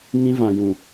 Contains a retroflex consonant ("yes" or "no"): no